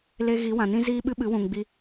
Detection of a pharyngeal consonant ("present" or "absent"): absent